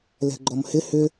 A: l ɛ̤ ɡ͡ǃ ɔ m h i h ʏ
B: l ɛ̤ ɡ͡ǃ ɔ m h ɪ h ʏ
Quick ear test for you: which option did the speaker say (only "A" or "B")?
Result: B